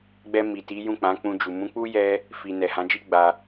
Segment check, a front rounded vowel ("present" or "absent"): absent